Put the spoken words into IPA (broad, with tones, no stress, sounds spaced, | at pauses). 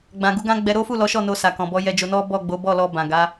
ɡ͡b ã˨ ɡ u˨˦ ɡ ã˦ ɡ͡b ɛ˧ ɾ o˦ f u˦˨ l ɔ˨˦ ʃ ɔ˦˨ n o˧ s a˨ k ɔ̃˨ b ɔ˧ j ɛ˧ d͡ʒ o˧ n ɔ˦ b ɔ˦˨ ɡ͡b o˨˦ b ɔ˦˨ l ɔ˧ b ã˨ ɡ a˨˦